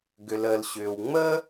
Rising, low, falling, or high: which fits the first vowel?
low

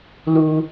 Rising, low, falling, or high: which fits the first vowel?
low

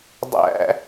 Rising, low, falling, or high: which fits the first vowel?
high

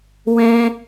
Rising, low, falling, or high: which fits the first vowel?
high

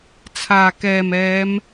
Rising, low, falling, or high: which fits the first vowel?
low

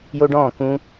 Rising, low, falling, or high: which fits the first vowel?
high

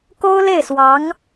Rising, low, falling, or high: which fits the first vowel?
high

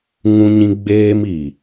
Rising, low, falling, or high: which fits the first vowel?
high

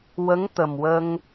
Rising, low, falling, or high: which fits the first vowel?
rising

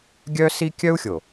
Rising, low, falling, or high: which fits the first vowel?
high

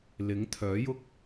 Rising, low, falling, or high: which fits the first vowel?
rising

